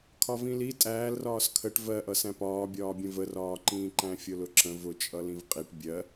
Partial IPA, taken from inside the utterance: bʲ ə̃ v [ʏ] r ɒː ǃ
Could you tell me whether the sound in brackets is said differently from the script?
yes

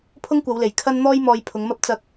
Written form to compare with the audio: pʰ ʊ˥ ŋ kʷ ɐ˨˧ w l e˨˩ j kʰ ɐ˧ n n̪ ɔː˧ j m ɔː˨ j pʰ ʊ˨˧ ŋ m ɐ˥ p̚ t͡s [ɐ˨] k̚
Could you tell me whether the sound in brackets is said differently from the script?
yes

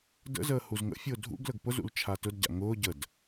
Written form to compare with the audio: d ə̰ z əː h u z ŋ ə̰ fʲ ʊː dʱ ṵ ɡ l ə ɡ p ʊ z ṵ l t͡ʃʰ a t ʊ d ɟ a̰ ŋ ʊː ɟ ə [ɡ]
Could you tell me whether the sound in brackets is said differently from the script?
yes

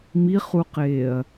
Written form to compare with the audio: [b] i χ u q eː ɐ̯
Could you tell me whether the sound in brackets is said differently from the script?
yes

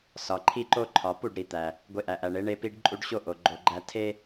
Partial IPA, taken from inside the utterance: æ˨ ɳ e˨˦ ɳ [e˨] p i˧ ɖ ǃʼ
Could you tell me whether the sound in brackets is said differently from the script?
yes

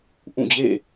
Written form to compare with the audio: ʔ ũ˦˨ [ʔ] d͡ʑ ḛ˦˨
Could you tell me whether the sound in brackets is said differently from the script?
yes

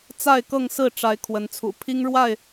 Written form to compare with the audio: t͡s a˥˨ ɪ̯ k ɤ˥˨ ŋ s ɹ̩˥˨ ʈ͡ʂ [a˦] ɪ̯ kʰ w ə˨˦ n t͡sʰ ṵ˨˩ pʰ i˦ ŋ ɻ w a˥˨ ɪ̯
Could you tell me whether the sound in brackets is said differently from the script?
yes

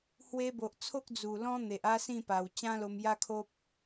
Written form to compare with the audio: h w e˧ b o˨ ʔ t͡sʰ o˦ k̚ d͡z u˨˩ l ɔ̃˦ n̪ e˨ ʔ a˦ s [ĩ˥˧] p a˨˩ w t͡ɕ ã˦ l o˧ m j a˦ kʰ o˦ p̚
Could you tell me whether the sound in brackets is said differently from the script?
no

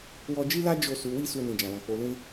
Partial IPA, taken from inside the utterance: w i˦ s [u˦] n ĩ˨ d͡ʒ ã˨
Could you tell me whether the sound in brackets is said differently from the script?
yes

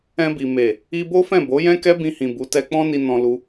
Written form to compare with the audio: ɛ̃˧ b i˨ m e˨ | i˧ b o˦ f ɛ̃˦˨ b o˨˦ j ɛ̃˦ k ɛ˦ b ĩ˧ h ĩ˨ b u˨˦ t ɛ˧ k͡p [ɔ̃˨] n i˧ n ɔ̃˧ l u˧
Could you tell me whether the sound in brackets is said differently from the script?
yes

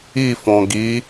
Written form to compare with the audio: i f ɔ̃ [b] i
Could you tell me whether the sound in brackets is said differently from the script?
yes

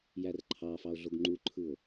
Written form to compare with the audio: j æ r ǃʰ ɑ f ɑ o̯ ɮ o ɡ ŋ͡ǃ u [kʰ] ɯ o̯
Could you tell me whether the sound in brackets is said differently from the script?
yes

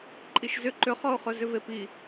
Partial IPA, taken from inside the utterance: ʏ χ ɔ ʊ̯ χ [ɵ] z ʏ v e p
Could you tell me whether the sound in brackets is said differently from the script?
no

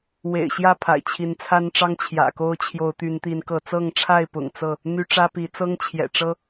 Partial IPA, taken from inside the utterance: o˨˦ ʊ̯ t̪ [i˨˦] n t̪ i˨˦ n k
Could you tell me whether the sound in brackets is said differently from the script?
yes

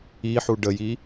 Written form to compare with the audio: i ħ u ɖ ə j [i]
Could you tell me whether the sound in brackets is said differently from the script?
no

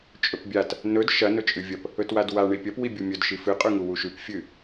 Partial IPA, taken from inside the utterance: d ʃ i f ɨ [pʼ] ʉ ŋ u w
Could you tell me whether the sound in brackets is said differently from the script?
yes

